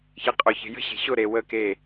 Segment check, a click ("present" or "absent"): absent